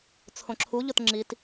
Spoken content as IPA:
t͡sʰ õ ǁʰ u ʎ ʊ t ŋ͡ǁ i t

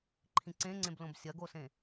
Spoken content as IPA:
ǃʰ ĩ ǀ ẽ ŋ͡ǀ ẽ b l õ b sʲ ɐ ɡ o s ẽ

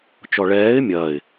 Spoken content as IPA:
t͡ʃ ɔ ɭ ɛː ɪ̯ mʲ ɐː ɪ̯

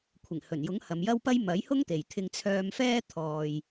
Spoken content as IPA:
kʷʰ ɪ˨˩ ŋ h ɵ˨˩ n j ʊ˨˥ ŋ h ɐ˨˧ m j ɐ˥ w p ɐ˥ j m ɐ˨˥ j h ʊ˥ ŋ t̪ e˨ j t̪ʰ ɪ˧ ŋ t͡sʰ œː˧ m f ɛː˥ t̪ʰ ɔː˨ j

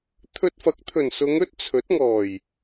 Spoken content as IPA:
t̪ʰ ɵ˧ t̚ f ɐ˨˥ k̚ t̪ʰ ɵ˨˩ n s ʊ˨˧ ŋ ɵ˥ t̚ t͡sʰ ɵ˨˥ t̚ ŋ ɔː˨˩ j

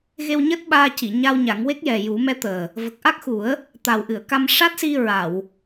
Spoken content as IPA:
ɣ e˧ w ɲ əː˦˥ t̚ ɓ aː˧ c i˨˩˨ ɲ a˧ w ɲ a˨˩˦ ŋ w e˦˥ k̚ j ɛ˨˩ j u˨˩˦ m ɛ˧˥ t̪ əː˨˩ | v ə˨˩ k̚ ʔ a˦˥ k̚ x u˨˩˦ ə̯ | t̪ a˨˩ w ʔ ɨ˨˩˨ ə̯ k a˧ m ʂ a˦˥ t̚ s i˧ ɹ a˨˩˨ w

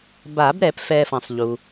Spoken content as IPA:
b a˨˩˦ b ɾ ɛ˨˩˦ p f ɛ˨ f ɐ̃˨ sˤ ʎ u˨

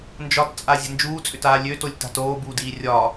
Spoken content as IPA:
n d͡ʒ ɒ t t͡sʼ a zʲ a̤ n d͡ʒ uː t͡sʼ ʏ t aː lʲ ø t o lʲ t a̤ t oː b uː d iː rʲ ɒ

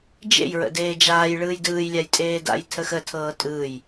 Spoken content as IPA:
d͡ʒ ḛ j ɹ ə̰ d eː d͡ʒ aː j ɭ ɯː j d ɯː j lʲ a j tʼ eː d a̰ j tʰ ə x ə tʰ ɤː tʼ ɯː j

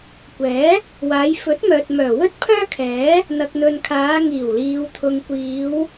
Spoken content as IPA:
kʷ ɛː˨˥ | w aː˨˧ j f ɵ˨˥ t̚ m œː˨ t̚ m œː˨˩ w ɵ˥ t̚ pʰ œː˥ kʰ ɛː˨˥ | n̪ ɐ˨ k̚ n̪ ɵ˨ n kʰ aː˨˧ ŋ iː˨˩ w l iː˨ w t̪ʰ ʊ˨ ŋ kʷ iː˨˧ w

